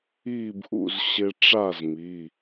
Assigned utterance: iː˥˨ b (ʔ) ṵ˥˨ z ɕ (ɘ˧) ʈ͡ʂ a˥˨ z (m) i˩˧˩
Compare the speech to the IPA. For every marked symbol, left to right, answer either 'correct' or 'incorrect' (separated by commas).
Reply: correct, incorrect, correct